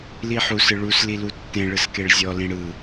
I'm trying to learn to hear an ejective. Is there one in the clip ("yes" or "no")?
no